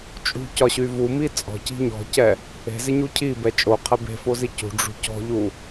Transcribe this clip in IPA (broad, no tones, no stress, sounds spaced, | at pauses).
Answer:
t͡ʃʼ ṳ c ɒ ɕ y v u m i t͡sʼ ɔ̤ c i̤ ɲ ɔ̤ c ɛ | e̤ z ɪ ɲ u cʰ i b ɛ t͡ʃʼ o qʰ ɛ b e̤ f o z i c ṳ ɖ͡ʐ ṳ c ɔ̤ ʎ u